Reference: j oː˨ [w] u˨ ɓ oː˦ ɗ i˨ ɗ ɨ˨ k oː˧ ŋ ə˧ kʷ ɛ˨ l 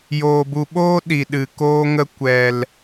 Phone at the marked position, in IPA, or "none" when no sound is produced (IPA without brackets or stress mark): b